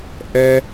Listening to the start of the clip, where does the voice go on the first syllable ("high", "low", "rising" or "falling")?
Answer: low